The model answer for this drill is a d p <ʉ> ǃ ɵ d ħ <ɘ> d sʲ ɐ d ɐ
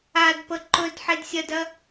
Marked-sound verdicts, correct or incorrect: incorrect: ə, incorrect: e

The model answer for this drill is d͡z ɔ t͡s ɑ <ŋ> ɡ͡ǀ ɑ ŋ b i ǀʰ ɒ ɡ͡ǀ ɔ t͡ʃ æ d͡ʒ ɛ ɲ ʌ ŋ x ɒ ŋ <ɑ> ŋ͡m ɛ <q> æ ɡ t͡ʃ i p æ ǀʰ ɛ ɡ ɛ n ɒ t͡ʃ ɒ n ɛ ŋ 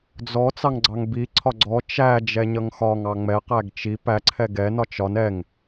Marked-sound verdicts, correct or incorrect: correct, correct, correct

